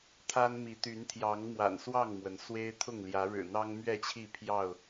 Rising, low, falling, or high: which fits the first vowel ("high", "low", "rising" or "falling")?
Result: high